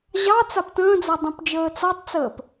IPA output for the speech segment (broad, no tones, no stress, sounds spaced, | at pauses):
ʑ ɑ t͡s a p t ə̃ː d͡z a dˤ ũ p d͡ʒ əː t͡s ɔ tˤ t͡s əː p